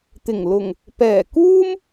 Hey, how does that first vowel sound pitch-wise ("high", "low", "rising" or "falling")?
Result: low